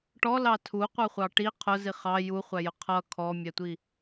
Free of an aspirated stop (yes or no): no